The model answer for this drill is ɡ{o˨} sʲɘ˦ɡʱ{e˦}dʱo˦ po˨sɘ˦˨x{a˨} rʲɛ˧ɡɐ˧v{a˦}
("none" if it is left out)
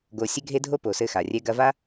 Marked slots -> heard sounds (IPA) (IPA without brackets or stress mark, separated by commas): o˨, e˦, a˨, a˦